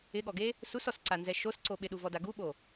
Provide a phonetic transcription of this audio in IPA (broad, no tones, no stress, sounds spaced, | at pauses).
ɪ ɠ ɔ ɡ e | s u s ɔ s ǀ a n z ɛ ʃ o s ǀ o ɓ ɪ ɗ u v ɔ d a ɡ u ɓ o